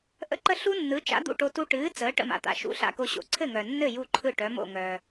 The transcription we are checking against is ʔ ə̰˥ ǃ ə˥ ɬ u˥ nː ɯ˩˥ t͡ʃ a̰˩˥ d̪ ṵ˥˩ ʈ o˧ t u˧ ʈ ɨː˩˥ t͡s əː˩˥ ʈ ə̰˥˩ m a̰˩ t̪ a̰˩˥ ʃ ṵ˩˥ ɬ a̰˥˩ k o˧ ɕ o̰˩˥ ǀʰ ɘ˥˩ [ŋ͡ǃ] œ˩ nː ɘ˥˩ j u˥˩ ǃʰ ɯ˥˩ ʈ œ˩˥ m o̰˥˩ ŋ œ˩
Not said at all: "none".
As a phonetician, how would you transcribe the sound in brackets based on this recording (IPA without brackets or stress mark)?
ŋ